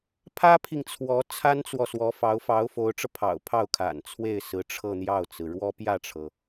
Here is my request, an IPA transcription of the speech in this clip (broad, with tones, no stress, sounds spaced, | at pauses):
pʰ ä˥ pʰ i˨ ŋ t͡sʰ w ɔ˧˥ t͡sʰ a˥ n t͡s w ɔ˨ s w ɔ˧˥ f ɑ˧˥ ʊ̯ f ɑ˧˥ ʊ̯ f o˧˥ ʊ̯ ʈ͡ʂ ɤ˧ pʰ ɑ̰˨˩ ʊ̯ pʰ ɑ˥˩ ʊ̯ kʰ a̰˨˩ n t͡sʰ w e˥˩ ɪ̯ s ɹ̩˧˥ ʈ͡ʂʰ ɤ˥˧ n̪ j ɑ˥˩ ʊ̯ t͡s ɹ̩˩ ɻ w ɔ˥ p j ä˥˩ ʈ͡ʂʰ ɤ˩